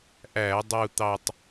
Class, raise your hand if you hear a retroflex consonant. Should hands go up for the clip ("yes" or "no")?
no